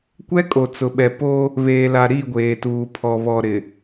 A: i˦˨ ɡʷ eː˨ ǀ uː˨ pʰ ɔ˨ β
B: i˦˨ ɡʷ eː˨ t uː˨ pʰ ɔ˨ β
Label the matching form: B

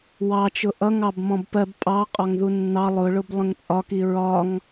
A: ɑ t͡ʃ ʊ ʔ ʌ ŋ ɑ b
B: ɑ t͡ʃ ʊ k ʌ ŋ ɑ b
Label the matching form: A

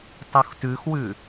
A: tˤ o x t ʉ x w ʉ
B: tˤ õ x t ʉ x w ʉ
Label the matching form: A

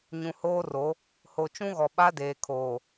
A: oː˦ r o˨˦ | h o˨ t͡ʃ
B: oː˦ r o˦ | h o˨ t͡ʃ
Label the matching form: A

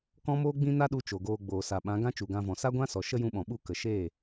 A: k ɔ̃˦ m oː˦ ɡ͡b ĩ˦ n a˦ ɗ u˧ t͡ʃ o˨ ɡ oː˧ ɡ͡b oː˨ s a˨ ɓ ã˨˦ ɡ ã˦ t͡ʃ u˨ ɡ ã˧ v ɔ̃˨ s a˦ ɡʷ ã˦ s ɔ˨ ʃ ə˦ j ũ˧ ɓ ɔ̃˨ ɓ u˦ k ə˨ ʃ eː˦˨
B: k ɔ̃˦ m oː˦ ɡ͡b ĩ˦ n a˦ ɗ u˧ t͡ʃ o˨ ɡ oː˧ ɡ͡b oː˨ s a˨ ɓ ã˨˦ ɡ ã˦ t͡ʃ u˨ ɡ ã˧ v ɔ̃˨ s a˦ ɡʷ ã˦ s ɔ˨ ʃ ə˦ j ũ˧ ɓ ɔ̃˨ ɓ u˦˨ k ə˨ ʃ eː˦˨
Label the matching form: B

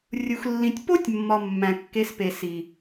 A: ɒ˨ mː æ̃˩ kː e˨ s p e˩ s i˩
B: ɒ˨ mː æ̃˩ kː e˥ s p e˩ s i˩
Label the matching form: A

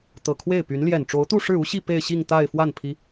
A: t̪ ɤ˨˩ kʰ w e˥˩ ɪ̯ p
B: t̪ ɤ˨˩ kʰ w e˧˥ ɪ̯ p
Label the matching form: A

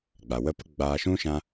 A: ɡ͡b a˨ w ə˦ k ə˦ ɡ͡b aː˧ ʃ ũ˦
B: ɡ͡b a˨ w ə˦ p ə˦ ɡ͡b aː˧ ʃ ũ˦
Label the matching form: B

